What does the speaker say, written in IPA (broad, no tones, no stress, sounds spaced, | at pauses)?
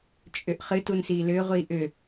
t͡ʃʼ ʏ ʔ χ ɨ t u n s iː l ʏː ʁʷ iː ʔ ʏ